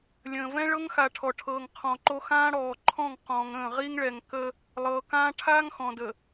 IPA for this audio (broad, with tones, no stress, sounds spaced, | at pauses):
lʲ ə̃ː˨ v ɛ̃˦ ɭ ɤ˦ ŋ x a˨ ʈʰ ɔ˨ ʈʰ ɤː˨ ŋ qʰ ɔ̃˨ ǃ o˦ x ãː˦ ɽ ɔː˨ ǃʰ ɔ̃˦˨ ŋ q ɔ̃ː˨ ŋ ə̃ː˦˨ ʁ i˦ ŋ ɭ ɛ˨ ŋ k ə˦ | lˠ ɤː˨ k ãː˦ ʈʰ aː˦ ŋ x ɔ̃˨ d ə˨